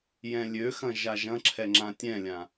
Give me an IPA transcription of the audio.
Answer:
j ɛ̃ lʲ ø x ɐ̃ ʒ a ʒ ɐ̃ ǁʰ ɛ ŋ͡ǁ ã tʲ ɛ̃ lʲ ã

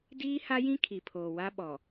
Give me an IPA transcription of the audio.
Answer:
d iː˦ h a˦ j ĩ˦ kʰ i˨ pʰ oː˨ w a˦ ɓ ɔ˨

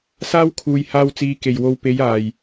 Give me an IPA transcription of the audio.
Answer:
s aː˥ w kʰ uː˨ j h aː˧ w t͡s iː˨˧ k e˨˩ j w o˨˧ w p e˨˧ j aː˨˩ j

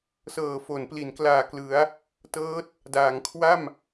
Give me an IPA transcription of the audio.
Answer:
s ɤː˨˩ f o˩˦ n p l i˩˦ n k l aː˨˩ k l ɯ˩˦ a̯ | t ɤː˦˥ t̚ | d aː˩˦ ŋ kʰ w a˥˩ m

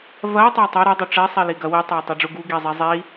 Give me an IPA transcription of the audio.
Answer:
v ɐ i̯ tˤ ɐ i̯ tˤ ɛ ɾ ɛ dˤ u ʈ͡ʂ ɛ sˤ i l i ɡ ɐ w i tˤ ɛ i̯ tˤ i ɖ͡ʐ u ɡ u ɡ i zˤ i zˤ i

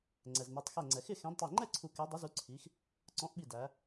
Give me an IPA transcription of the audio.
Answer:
ŋ͡ǀ ɛ˩ z n ʌ˩˧ tˤ x ɛ˧˩ ŋ͡ǀ ɛ˩ x ɪ˥˨ x ɛ̃˨˥ d tˤ i˧˩ ŋ͡ǃ ɛ˥˨ ǀʰ u˧˩ k ɛ˨˥ dˤ ʊ˨˥ z u˨˥ ǀʰ i˩˧ x | ǀ ɔ̃˨˥ ʔ ɓ i˧˩ d æ˩˧

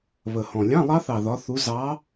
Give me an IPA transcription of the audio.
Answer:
β ə˨˩ h ɔ̃˨˩ lʲ ɑ̃˧˥˧ lˠ ɑ˦˥ θ ɑ˨˩ ð ɒ˨˦ θ u˨˦ z ɑ˨˦

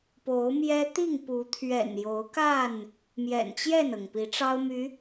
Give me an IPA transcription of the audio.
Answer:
p o˨˦ ʊ̯ m j ɛ˦ t̪ i˥˨ ŋ p u˨˦ t̪ʰ ɥ ɛ̰˨˩ n j o˨˦ ʊ̯ k a˥˨ n | m j ɛ̰˨˩ n t͡ɕ j ɛ˥˨ n ɤ˩ ŋ p i˨˦ ʈ͡ʂ ɑ˦ ʊ̯ m y˨˦

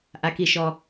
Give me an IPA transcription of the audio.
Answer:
ʔ a˩ k i˩ ʃ ɔ˩

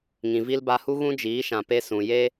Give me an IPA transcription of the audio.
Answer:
ŋ ĩ˨ v i˧ l b a˧ h u˦ ɣ ũ˦ d͡ʒ iː˨˦ ʃ ã˨ p e˧ s ũ˨ j e˦

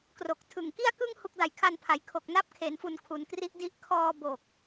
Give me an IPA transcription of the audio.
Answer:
k r o˨˩ k̚ tʰ ɯ˨˩ ŋ k i˥˩ a̯ k ɯ˥˩ ŋ h u˦˥ k̚ d a˨˩ j kʰ a˧ n pʰ a˩˦ j kʰ o˨˩ k̚ n a˦˥ p̚ kʰ e˩˦ n f u˨˩ n kʰ u˩˦ n k r i˦˥ ʔ d i˦˥ ʔ kʰ ɔː˧ b o˨˩ k̚

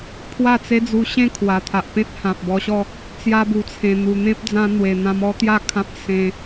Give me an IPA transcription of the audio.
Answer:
pʰ w a˥˧ t͡s e˦ d͡z u˧ ɕ ẽ˥˧ kʰ w a˨˩ t̪ʰ a˨ ʔ p ẽ˦ t̚ h ã˨ p̚ b ɔ˧ ɕ ɔ˥˧ | t͡s j a˧ b u˨˩ t͡sʰ ẽ˨˩ n̪ u˨˩ n̪ ẽ˦ p̚ d͡z ã˧ n̪ w e˨˩ n̪ ã˧ m ɔ˦ t̪ j a˥˧ kʰ ã˦ p̚ s ẽ˧

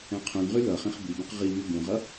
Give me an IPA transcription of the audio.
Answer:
ɛ̃ qʰ ũ n ʁ y l ʌ χ ĩ χ b i b ũ q ʁ i β y b ũ ʁ ʌ

